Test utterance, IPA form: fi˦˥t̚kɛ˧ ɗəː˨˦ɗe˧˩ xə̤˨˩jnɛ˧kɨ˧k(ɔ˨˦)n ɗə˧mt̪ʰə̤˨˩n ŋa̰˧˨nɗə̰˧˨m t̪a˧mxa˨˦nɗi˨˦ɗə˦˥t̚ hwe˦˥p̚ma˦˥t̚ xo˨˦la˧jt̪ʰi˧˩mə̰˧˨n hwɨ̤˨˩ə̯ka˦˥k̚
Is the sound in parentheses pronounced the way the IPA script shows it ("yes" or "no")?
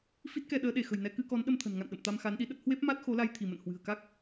yes